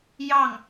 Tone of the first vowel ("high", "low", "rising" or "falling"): falling